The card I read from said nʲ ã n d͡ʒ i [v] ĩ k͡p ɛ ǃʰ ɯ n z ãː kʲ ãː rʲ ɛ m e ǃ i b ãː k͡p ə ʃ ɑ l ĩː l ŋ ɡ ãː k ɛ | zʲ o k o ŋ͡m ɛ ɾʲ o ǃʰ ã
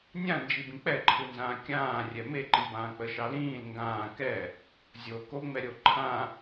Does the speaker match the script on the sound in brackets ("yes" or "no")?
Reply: no